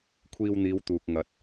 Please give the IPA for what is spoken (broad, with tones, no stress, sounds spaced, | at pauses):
kʷʰ iː˧ w n̪ iː˨˧ w t̪ uː˨ k̚ ŋ ɐ˨˥ t̚